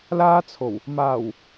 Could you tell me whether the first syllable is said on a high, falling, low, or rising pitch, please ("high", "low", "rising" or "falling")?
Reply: high